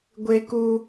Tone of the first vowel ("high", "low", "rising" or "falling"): high